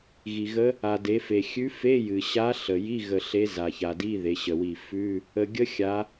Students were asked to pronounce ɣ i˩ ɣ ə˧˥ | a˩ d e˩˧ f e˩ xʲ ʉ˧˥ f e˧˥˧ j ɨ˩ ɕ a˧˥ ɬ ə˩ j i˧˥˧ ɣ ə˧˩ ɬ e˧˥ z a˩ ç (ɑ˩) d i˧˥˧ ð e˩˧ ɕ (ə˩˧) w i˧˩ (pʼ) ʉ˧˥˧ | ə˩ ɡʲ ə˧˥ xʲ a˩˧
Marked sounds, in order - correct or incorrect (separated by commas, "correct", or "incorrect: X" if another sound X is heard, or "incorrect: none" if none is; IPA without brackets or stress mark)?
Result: incorrect: a˩, incorrect: ə˩, incorrect: f